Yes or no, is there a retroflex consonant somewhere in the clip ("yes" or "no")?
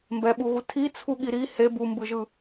no